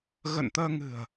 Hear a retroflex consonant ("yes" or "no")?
no